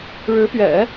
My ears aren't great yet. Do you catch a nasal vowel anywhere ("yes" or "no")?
no